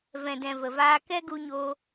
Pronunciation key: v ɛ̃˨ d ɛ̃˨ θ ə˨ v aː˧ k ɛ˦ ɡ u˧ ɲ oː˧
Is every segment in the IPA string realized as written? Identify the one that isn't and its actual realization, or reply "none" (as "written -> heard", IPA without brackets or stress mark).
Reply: θ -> v